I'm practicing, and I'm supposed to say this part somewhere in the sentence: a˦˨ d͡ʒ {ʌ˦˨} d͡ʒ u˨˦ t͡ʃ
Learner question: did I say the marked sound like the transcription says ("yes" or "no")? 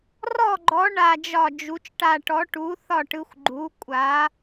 no